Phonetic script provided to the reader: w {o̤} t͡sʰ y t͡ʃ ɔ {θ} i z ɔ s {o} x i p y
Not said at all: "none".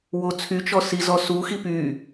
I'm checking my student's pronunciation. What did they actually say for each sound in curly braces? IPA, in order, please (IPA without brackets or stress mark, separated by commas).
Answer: o, s, u